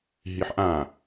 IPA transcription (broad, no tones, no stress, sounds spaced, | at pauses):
ɦ i ħ ʔ ã